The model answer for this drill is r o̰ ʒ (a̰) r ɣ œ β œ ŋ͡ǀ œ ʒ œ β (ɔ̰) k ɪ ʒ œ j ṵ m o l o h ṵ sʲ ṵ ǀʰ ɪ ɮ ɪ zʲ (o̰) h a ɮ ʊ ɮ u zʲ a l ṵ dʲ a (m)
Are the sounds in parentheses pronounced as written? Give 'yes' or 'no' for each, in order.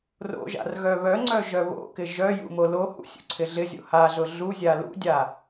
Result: yes, no, yes, no

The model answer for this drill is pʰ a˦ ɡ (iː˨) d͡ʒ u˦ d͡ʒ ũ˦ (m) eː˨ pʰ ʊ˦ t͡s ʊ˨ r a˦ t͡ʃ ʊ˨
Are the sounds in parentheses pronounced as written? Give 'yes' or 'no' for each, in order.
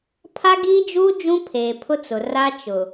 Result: no, no

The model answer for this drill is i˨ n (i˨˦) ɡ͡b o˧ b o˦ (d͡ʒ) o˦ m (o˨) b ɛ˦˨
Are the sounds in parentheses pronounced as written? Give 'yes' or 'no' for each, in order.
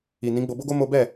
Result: no, no, no

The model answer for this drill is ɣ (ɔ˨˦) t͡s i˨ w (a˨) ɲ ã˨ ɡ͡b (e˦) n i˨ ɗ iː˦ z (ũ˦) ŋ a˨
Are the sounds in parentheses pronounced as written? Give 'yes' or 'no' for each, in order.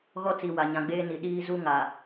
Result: no, yes, no, no

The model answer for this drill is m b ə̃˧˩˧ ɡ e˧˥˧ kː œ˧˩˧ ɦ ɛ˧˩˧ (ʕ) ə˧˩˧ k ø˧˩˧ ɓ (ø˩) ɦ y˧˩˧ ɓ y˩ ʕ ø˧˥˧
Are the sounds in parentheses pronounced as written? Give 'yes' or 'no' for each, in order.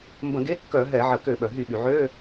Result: yes, no

